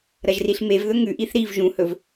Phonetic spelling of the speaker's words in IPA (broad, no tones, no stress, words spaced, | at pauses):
ɾɐʒriɬmevðɵ ŋʉʔiθ ɾiv ʒũhɵv